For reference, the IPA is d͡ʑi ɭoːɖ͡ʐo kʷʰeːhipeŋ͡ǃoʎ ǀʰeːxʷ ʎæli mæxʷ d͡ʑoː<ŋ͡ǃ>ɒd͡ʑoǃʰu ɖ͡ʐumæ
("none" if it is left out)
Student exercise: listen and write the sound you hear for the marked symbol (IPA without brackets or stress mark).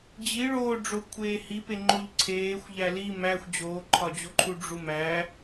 ǃʰ